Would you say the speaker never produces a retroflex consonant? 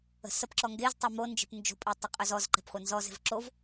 yes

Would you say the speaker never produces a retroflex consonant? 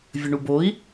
no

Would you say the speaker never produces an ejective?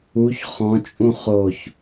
no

